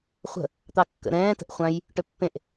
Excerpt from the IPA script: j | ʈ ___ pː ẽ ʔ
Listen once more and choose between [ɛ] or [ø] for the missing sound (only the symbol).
ø